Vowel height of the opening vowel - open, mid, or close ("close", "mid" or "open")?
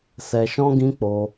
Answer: mid